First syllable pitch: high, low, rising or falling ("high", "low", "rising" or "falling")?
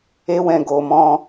high